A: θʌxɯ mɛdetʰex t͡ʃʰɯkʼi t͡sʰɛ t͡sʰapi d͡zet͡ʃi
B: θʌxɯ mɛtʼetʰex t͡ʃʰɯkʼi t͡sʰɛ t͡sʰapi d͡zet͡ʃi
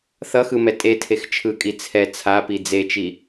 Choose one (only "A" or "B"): B